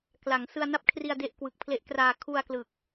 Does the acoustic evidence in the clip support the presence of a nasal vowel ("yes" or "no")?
no